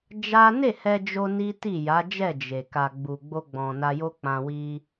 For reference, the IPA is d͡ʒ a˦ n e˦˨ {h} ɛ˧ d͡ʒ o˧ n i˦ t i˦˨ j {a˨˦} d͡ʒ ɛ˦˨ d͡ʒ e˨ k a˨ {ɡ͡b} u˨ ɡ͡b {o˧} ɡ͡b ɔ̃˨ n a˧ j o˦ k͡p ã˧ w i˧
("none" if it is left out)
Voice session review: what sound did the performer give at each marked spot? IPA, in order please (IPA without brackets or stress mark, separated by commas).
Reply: h, a˨˦, ɡ͡b, o˧